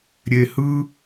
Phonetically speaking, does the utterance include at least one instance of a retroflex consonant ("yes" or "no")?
no